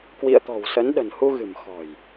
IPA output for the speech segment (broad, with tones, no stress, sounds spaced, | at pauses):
k w ḭ˧˨ ə̯ t̪ ɔ̤˨˩ w s ə˨˦ n ɗ ə̤˨˩ n h u˧ ɣ ɨ̤˨˩ m x ɔ̤˨˩ j